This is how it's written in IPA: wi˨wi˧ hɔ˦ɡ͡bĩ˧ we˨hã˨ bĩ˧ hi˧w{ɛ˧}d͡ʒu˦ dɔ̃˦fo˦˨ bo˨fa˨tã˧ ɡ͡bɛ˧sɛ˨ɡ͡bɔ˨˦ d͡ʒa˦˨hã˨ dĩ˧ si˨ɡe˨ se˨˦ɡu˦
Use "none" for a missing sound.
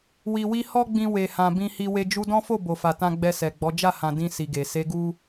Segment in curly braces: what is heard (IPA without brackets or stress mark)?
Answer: e˧